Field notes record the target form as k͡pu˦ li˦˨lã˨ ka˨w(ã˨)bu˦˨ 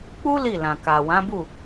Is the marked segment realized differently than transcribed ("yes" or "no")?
yes